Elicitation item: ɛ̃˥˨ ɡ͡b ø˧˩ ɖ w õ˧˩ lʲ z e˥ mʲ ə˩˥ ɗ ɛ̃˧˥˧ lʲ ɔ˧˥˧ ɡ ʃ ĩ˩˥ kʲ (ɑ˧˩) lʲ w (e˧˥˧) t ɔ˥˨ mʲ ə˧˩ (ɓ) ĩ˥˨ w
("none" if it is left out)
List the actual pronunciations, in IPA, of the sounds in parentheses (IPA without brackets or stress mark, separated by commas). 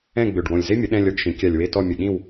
a˧˩, e˧˥˧, ɠ